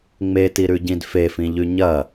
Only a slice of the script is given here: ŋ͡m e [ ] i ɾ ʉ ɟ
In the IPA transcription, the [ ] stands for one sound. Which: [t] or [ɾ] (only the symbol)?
t